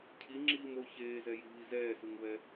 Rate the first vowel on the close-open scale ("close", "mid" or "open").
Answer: close